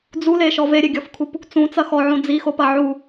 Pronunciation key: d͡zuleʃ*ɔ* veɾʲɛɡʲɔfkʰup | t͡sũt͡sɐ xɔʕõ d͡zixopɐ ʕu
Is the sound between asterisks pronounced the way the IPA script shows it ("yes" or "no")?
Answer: yes